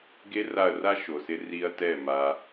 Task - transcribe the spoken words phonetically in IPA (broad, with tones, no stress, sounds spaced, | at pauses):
ɡ e˦ r a˦˨ ɐ̯ r a˦ ʃ o˨ s ɪ˧ r i˧ ɐ̯ t ɛ˦˨ m a˧